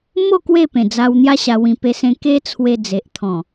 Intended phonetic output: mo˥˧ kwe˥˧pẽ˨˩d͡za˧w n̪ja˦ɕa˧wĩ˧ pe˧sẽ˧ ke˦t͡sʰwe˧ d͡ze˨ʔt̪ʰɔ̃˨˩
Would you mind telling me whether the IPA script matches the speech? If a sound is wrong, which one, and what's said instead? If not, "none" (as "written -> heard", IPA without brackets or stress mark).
none